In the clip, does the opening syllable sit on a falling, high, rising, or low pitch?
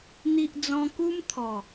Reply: low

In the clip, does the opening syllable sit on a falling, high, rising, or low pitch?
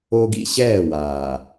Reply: high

